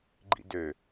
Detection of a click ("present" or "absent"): present